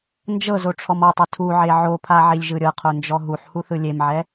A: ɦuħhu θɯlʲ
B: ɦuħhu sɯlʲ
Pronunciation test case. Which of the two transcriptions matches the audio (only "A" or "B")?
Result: A